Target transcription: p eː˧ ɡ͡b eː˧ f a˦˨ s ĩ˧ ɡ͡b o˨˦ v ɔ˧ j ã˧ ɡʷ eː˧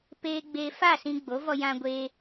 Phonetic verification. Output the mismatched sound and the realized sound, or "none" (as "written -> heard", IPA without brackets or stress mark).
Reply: none